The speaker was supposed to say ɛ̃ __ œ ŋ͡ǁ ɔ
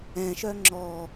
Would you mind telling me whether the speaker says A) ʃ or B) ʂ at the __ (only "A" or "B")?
A